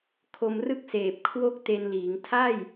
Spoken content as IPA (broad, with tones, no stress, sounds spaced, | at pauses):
kʰ o˧ m r ɯ˥˩ k̚ s eː˨˩ p̚ kʰ w o˦˥ k̚ t e˧ n l iː˩˦ ŋ tʰ a˥˩ j